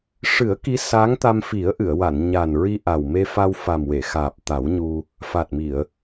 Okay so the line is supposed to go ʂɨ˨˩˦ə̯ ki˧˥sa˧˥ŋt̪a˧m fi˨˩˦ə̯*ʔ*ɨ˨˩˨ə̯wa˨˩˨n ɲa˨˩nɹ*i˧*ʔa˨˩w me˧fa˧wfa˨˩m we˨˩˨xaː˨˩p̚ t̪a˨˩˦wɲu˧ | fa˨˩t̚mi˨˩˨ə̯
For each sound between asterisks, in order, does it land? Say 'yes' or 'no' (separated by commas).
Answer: yes, yes